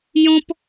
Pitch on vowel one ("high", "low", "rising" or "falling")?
high